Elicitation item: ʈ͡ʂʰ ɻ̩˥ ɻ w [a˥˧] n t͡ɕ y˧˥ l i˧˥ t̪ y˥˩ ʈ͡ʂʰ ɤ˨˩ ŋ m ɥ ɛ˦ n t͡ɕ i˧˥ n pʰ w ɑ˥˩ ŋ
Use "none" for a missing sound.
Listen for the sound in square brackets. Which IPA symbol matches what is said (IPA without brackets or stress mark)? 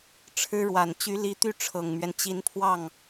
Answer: a˨˩